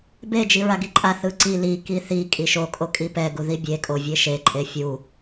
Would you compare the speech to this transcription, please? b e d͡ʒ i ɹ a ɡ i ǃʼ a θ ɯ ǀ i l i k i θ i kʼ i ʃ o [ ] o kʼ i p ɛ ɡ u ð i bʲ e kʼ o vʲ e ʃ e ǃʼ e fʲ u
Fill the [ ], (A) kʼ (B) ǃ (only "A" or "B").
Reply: A